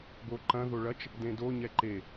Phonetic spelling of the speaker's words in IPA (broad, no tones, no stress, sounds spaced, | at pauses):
b o ǃ ɐ̃ ð o ɭ ɐ t͡ʃ | d ẽ d o ɲ ɛ ǃ e